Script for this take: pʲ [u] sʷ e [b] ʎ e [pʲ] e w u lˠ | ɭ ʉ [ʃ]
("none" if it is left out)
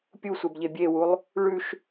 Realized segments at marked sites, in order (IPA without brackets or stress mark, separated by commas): u, b, bʲ, ʃ